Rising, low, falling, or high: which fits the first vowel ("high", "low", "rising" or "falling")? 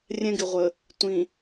high